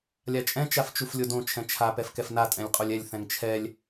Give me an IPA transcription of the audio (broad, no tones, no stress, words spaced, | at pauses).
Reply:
lʲat͡ʃʼɛ̃ t͡ʃaft͡ʃuflʲodõ t͡ʃʰɛ̃t͡ʃʰa pɛfkɛfna tʼɛ̃lʲqʼolʲɛlʲ θɛ̃ŋt͡ʃʰɛlʲ